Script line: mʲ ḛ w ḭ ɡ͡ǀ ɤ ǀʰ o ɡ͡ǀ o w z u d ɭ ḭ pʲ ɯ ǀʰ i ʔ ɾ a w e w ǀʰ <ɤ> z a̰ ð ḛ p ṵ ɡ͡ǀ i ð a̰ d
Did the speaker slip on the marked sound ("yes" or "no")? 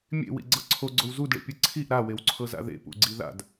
no